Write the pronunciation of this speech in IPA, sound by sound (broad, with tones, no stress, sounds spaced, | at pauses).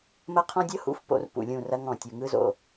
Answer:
m ɐ˦ qʰ ɔ̃˦ dʲ ɤ˦ h ṵ˨˦ f p o̰˨˦ r p ṵ˨ lʲ ũ˦˨ r ɐ˦ ŋ ɔ̃˨ tʲ u˨ ŋ ɯ˦ z o̰˨